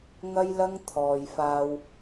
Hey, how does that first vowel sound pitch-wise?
high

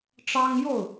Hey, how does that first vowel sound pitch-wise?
high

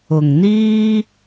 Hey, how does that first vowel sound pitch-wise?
low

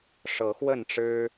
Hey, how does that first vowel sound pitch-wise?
rising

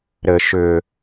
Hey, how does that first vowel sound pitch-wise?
low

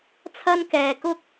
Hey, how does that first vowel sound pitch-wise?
high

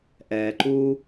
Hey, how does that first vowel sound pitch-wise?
low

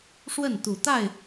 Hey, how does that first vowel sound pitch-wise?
falling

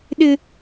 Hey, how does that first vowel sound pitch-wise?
high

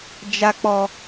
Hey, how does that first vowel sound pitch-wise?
high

